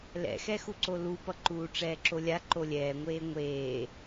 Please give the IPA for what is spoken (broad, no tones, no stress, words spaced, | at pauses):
lɛ̰xɛxuǀo lupʌǃuː ʈ͡ʂɛːǁolʲa ǃolʲɛːŋʷeː ŋʷeː